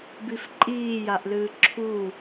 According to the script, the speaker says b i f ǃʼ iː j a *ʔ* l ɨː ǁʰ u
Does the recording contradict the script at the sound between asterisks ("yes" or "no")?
no